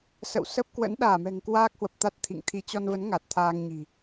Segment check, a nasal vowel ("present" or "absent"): absent